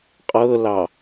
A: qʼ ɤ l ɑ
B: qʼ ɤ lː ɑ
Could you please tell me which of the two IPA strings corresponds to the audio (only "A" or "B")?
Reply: A